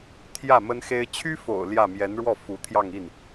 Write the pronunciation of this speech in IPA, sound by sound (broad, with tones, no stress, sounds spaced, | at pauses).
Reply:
t̪ʰ j ä˥˩ m ə˥ n x e˥ ɪ̯ t͡ɕʰ y˥ f o̰˨˩ ʊ̯ l j ä˥˩ m j ɛ˧˥ n ɻ w ɔ˥˩ f u˧˥ t̪ʰ j ɑ˥˧ ŋ i˥˩ n